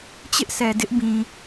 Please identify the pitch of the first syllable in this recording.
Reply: high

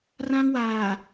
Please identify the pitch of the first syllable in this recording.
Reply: high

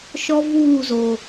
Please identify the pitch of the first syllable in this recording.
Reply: high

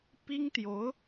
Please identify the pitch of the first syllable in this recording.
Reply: high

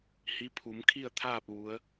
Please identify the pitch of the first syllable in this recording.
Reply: rising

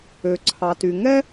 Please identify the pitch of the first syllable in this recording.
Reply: low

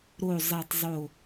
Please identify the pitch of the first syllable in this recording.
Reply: falling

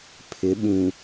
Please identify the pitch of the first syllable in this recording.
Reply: rising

